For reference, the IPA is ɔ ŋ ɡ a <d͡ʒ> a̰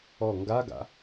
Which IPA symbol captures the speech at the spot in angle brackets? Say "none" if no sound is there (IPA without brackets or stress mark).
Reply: ɡ